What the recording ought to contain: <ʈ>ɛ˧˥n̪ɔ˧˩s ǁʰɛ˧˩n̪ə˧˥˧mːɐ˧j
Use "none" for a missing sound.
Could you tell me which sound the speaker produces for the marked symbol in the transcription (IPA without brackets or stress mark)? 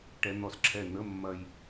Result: ʈ